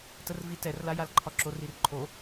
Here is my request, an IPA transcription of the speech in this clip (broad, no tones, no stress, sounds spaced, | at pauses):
t ə r v i t ɛ r l a j a l ǃʰ ɒ ǁ o r i r ǃʰ o